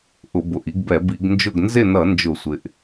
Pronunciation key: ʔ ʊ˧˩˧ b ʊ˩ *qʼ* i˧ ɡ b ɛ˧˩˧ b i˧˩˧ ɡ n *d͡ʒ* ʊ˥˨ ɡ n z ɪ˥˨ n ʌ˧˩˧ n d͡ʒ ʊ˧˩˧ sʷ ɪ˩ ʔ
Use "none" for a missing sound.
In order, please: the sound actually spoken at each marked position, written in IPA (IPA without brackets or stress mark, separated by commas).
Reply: ʔ, d͡ʒ